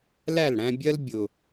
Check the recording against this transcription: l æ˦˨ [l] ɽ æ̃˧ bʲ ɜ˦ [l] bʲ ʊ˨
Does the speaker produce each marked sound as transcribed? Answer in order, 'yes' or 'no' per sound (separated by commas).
yes, yes